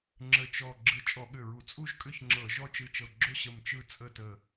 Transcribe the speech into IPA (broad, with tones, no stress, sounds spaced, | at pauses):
ŋ͡ǁ ə˧˩ t͡ʃ ɔ˧˩ ɡ͡ǁ ɯ˧˩ t͡ʃʼ ɔ˧˩˧ ɠ ʏ˧˩ ɹ u˧˩˧ t͡sʼ u˥˨ ʒ kʼ ʏ˥˨ ç ŋ͡ǁ ɤ˧˩˧ ʒ ɔ˥˨ t͡ʃ ɯ˧˩ t͡ʃ ɤ˧˩ ɡ͡ǁ ʏ˥˨ ɕ ə˧˩ m t͡ʃ ɯ˥˨ t͡sʼ ə˥˨ t ə˧˩